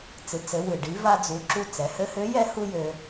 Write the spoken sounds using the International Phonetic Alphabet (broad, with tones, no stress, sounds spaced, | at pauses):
t͡s ɨ˩˧ t͡s ɘ˩˧ w ɨ˩ ɖ i˩˧ v a˧ d͡z u˩˧ ǁ u˧ t͡s ɛ˩˧ h ɘ˧˥ h ø˧˥ j ɛ˥ h u˥ j ø˧